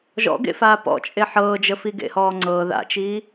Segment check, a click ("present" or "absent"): present